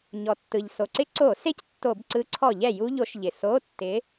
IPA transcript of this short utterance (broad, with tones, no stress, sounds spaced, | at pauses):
ɲ ɔ˩ tː ɯ˩ ʎ s o˩ ǀ ɪ˥ ǀ o˧˩˧ s e˥ c tː o˧˩˧ b ǀ ɯ˨˥ ǀʰ ɔ˧˩˧ ʎ ɛ˩ j u˥ ʎ o˨˥ ʃ ʎ ɪ˩ s o˧˥˧ tː ɪ˨˥